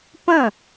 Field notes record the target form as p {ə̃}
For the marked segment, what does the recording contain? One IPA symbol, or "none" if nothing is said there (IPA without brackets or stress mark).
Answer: ə̃